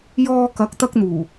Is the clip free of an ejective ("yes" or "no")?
yes